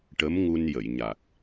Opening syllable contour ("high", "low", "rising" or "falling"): rising